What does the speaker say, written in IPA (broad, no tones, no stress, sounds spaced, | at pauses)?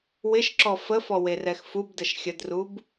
w ɪ ʃ ǁ ɔ f ə f ɔ w e r ɛ x f u b d ə ʃ xʲ ə d r u b